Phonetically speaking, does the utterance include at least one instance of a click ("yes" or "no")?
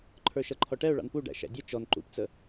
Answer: yes